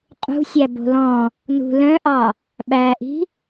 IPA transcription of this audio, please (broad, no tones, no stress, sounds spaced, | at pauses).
qʼ ṳ sʲ æ b o̤ l ɔ̃ | n ṳ l œ̃ ʔ ɑ | ɓ æ ʔ i̤